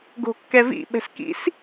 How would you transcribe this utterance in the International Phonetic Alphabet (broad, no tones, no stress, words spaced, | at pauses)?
ɡo̤kːɛvḭ ɓɛ̤skḭs